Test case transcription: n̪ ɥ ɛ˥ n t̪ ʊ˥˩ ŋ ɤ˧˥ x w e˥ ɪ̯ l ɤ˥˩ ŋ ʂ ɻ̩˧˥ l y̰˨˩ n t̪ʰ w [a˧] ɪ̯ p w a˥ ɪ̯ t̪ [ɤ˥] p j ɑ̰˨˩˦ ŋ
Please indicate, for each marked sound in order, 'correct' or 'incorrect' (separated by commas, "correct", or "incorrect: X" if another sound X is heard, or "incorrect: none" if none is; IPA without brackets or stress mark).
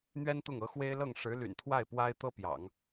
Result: incorrect: a˥˩, correct